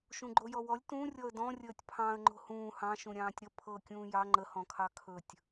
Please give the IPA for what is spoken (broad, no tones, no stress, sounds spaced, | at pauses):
ʃ ũ ɡ͡ǃ o j ɔ w ɔ lʲ t ũ rʲ ɔ ə̯ d ɔ̃ rʲ əː tʲ pʰ ɑ̃ ə̯ ŋ͡ǃ o̤ h ũː h ɑ̃ ʃ ũ ɾʲ ɑ̃ː tʲ ɾ ə pʰ ɤ kʲ ũː j ɑ ŋ͡ǃ ə h ɔ̃ kʰ ɑ kʰ ɵ tʲ